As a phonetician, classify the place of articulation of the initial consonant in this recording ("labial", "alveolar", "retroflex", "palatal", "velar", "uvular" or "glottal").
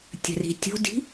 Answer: alveolar